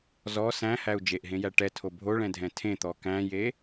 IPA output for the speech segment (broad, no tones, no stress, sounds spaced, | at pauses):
z ɔ s æ̃ h æ u̯ d͡ʒ e ʔ ɦ ẽ j æ ʈ ɛ tʰ o bʱ o ɭ ɛ̃ dʱ ɛ̃ tʰ ẽ t̪ ɔ k æ̃ j e